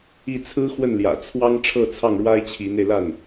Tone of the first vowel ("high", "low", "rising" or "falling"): falling